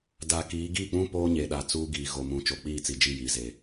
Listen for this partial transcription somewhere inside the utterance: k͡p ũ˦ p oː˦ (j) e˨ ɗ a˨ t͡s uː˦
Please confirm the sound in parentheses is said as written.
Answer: no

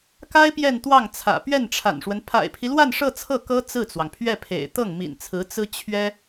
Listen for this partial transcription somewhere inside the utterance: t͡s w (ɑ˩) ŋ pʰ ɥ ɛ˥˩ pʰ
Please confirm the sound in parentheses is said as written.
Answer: yes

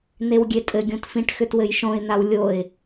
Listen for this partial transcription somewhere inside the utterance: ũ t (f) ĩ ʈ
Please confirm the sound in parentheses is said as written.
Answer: yes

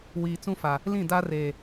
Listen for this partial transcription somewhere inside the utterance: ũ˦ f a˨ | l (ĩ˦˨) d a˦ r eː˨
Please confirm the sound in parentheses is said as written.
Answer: yes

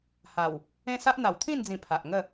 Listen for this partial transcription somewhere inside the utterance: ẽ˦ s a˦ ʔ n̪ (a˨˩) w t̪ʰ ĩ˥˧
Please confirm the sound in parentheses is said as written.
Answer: yes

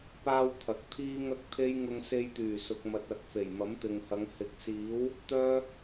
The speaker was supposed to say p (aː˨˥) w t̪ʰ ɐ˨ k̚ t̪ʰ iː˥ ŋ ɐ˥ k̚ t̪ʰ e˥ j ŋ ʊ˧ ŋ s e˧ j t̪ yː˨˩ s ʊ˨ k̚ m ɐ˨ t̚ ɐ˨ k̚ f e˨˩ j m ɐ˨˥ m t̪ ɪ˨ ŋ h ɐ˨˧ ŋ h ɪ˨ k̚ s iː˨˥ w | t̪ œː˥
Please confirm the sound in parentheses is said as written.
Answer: no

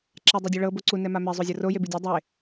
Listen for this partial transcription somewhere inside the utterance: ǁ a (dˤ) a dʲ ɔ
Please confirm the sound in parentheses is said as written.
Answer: yes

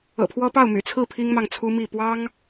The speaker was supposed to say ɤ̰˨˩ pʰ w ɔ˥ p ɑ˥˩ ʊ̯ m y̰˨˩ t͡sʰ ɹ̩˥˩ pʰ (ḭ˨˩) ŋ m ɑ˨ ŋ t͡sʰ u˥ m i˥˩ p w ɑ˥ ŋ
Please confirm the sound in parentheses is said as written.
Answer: no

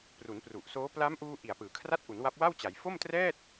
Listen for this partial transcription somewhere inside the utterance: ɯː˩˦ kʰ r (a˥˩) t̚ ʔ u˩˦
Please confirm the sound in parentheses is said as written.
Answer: yes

